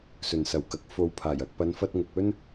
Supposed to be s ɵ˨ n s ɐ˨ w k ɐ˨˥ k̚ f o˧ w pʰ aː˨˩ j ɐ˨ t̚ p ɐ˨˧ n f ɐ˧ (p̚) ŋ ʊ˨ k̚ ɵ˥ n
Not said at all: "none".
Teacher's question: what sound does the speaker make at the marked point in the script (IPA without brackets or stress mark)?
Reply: t̚